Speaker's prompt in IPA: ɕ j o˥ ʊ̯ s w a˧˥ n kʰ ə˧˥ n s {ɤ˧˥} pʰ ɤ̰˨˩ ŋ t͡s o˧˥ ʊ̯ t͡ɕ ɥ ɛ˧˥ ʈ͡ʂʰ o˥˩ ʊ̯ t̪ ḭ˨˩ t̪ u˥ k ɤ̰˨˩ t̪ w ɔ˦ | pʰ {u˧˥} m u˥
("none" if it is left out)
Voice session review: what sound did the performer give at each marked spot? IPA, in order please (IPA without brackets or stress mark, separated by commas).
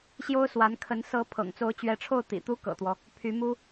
ɤ˧˥, y˧˥